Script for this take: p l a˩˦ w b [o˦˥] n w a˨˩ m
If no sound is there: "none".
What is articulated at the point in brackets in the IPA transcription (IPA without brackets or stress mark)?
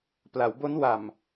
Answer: o˦˥